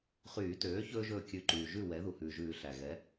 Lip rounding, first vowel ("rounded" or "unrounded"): rounded